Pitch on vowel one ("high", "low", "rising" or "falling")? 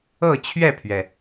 falling